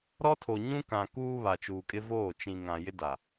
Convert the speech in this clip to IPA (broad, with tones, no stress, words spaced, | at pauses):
ɾɔ˦tʰo˨ ɲũ˦kã˨ kuː˦βa˨t͡ʃuː˨kʼɪ˦ voː˦˨ t͡ʃĩ˨ ŋã˨jɪ˦ da˨